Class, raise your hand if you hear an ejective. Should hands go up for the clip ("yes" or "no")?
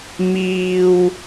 no